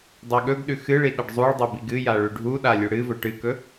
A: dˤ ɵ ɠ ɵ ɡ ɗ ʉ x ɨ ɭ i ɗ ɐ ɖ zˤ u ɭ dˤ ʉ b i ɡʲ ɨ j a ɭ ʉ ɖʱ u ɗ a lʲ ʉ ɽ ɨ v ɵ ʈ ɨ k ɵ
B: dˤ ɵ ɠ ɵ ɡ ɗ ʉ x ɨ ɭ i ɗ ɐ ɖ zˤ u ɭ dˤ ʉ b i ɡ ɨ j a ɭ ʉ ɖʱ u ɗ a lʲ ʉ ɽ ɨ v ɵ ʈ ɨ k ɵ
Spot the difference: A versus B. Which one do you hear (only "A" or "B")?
B